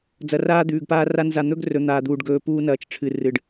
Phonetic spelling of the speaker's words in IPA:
d͡z ɐ˨ r aː˦ d̪ ʉː˨ ɡ p aː˦ r a˦ n z a˨ n̪ ɵ˦ ɡ r ɵ˨ n̪ aː˨ d̪ uː˨ ɖ ɡ ɵː˨ p uː˦ n ɐː˨ t͡ʃ ʈ͡ʂʰ ɨ˨ r ɨ˨ ɖ

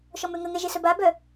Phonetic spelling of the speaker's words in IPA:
ʃ ɔ m ø ŋ ə ŋ ɛ ʒ e s œ b a b œ

